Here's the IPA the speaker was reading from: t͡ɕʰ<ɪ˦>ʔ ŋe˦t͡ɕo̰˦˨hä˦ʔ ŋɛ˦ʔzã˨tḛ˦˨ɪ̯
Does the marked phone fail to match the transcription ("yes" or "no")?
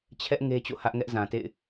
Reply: yes